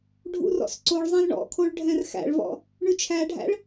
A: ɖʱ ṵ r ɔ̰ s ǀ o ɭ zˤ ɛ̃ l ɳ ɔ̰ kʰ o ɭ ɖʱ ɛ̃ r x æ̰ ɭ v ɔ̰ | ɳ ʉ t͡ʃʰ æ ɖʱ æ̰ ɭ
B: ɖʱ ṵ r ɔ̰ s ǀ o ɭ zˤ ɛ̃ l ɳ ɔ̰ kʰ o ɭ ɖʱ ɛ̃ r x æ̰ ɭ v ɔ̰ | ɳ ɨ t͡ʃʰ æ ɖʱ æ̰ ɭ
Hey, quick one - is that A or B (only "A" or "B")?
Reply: A